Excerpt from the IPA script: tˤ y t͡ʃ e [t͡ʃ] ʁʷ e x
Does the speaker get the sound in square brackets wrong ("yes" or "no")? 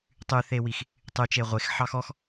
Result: yes